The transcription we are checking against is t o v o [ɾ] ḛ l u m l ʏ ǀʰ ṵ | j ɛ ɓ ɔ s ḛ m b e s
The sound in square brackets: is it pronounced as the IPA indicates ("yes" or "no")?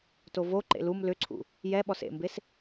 no